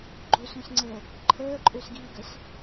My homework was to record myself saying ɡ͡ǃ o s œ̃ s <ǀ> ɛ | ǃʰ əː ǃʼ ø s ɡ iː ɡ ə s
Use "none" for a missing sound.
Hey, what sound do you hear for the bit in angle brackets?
ŋ͡ǀ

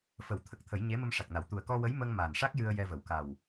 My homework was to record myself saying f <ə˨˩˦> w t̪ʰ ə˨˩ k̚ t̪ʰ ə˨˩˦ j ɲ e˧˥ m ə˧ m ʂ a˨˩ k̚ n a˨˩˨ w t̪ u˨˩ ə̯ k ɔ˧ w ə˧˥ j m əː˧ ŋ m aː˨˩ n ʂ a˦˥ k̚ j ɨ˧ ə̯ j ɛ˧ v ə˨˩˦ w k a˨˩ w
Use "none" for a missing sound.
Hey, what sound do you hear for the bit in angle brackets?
ə˨˩˦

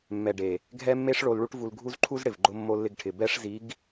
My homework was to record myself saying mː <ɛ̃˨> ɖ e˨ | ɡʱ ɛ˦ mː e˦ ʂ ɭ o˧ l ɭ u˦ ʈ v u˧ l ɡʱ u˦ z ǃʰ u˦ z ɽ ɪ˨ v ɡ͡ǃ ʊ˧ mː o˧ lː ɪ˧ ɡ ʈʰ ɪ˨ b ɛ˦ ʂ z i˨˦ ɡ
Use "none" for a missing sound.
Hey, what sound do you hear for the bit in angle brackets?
ɛ˨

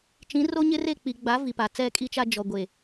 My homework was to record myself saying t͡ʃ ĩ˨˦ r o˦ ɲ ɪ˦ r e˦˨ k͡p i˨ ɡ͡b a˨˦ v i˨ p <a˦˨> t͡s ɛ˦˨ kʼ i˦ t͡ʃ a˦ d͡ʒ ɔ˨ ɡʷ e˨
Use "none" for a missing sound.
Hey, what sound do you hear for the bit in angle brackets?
a˨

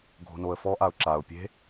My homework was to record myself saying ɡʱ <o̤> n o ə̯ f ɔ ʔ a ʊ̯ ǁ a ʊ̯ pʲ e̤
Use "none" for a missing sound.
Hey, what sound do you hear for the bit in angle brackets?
o̤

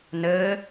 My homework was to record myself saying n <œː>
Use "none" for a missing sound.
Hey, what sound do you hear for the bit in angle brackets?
əː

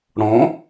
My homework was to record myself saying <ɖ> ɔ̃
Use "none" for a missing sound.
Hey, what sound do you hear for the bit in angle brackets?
ɽ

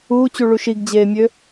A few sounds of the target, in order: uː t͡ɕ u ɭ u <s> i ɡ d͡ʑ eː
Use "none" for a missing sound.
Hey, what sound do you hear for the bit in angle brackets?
ʃ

